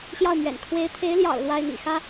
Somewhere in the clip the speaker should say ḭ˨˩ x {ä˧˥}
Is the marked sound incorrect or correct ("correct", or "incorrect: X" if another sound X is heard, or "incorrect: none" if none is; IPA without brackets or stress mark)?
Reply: incorrect: ä˥